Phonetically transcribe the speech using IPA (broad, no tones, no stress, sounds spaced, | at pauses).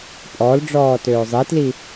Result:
pʼ ɔ l ɖ͡ʐ ɔː t øː zˤ i t l i